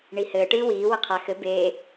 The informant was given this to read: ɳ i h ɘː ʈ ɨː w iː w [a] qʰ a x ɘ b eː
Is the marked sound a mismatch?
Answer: yes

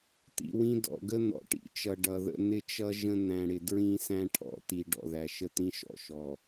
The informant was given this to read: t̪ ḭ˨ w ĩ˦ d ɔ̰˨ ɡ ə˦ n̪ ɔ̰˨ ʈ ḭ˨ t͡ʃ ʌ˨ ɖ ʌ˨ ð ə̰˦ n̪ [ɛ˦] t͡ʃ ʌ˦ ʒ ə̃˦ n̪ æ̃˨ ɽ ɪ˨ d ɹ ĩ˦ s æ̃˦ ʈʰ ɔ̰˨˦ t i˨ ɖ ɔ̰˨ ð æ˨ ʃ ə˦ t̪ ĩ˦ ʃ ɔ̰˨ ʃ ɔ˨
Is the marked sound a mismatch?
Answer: yes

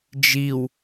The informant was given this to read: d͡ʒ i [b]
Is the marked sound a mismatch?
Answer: yes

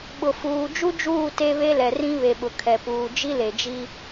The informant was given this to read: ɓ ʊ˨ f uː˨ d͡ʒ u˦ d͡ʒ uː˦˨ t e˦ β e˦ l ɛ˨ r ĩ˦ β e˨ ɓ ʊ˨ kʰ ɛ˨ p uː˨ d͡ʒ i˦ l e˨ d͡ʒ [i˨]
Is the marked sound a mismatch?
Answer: yes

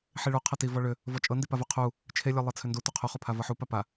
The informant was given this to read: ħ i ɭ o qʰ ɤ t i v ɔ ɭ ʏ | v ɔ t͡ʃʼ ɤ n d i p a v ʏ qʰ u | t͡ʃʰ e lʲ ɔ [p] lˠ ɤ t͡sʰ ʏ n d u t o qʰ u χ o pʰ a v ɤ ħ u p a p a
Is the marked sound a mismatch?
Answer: yes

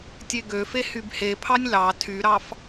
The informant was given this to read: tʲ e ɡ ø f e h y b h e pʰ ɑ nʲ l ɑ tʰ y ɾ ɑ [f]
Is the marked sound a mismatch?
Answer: no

